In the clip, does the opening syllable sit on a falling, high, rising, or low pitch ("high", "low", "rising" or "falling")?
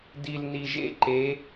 low